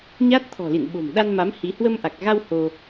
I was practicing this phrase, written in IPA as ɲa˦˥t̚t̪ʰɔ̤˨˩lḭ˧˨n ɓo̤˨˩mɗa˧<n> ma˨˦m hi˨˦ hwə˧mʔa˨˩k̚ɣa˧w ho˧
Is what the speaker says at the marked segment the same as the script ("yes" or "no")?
yes